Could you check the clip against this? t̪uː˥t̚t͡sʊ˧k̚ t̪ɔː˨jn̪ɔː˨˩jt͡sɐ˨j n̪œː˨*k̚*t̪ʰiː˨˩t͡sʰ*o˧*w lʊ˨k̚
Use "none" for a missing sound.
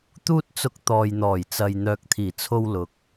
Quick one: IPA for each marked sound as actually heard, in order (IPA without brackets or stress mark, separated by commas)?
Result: k̚, o˧